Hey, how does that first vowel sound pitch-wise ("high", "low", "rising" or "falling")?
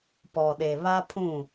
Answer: low